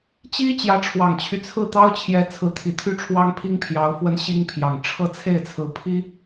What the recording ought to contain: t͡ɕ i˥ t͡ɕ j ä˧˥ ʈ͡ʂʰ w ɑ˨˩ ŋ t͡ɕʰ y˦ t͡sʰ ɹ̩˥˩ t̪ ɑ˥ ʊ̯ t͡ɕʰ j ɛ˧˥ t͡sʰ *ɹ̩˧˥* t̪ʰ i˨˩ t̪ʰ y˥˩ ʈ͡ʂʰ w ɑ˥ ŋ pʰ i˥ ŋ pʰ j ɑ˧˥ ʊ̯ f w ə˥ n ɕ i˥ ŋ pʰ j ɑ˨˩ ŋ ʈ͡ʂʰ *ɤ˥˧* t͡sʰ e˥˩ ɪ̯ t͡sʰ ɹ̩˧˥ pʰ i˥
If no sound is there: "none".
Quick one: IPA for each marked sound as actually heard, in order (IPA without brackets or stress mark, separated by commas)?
ɹ̩˧˥, ɤ˥˧